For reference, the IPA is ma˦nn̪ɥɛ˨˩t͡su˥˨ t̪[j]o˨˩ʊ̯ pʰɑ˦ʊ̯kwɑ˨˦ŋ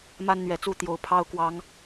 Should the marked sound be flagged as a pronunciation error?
no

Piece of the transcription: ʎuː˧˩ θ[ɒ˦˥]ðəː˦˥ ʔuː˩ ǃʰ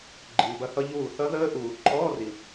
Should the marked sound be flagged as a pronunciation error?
yes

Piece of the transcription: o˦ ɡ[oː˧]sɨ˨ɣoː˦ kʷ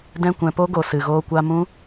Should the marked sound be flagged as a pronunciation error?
yes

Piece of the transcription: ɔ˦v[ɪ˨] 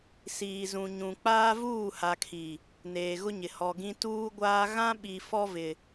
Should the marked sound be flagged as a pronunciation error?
no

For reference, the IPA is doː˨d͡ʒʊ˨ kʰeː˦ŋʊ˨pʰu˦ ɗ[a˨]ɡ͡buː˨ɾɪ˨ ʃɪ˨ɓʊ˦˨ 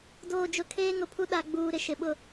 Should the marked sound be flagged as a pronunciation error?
no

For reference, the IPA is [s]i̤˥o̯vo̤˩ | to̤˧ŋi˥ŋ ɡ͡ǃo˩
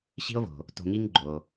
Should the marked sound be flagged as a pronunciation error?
yes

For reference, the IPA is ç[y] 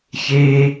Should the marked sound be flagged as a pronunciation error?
yes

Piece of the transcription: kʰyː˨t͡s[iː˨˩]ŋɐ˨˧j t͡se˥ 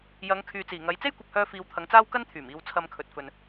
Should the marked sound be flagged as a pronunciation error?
no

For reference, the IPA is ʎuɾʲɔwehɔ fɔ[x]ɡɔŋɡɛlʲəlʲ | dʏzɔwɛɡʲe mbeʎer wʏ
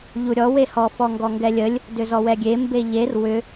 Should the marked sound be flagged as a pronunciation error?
yes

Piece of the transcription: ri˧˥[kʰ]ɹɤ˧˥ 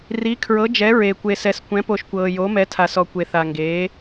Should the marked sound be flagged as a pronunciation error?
no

